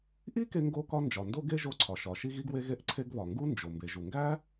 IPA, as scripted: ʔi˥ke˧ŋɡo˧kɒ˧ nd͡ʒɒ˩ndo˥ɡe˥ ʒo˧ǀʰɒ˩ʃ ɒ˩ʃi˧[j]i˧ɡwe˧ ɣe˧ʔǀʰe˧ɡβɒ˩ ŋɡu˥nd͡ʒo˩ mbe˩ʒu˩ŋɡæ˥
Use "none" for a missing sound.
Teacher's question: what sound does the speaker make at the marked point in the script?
ɣ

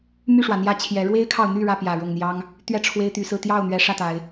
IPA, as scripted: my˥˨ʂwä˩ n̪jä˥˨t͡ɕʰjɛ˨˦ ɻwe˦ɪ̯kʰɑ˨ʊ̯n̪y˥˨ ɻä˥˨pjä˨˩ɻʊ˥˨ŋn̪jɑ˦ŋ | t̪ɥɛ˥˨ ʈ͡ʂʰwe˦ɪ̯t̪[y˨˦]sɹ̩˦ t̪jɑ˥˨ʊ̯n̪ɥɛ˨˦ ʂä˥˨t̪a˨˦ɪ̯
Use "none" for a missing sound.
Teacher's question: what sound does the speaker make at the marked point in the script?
y˨˦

